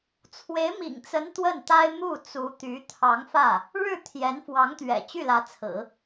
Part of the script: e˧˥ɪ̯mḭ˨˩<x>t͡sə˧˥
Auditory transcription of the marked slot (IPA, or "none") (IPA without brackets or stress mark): ŋ